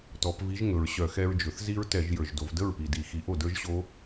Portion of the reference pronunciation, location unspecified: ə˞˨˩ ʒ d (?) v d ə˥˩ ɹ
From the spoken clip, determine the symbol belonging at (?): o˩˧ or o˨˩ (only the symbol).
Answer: o˩˧